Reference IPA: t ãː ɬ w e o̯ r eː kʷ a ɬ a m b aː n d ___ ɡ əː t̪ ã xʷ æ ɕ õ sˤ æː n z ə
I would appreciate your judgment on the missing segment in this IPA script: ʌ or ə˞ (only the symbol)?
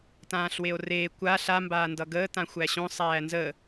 ʌ